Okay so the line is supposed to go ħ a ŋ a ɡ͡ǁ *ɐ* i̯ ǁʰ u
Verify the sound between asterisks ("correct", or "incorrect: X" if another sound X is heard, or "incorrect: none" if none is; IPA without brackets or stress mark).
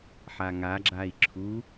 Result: incorrect: a